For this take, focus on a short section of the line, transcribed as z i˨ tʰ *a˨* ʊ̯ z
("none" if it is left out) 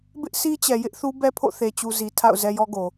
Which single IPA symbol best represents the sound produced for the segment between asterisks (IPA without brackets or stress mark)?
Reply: a̰˦˨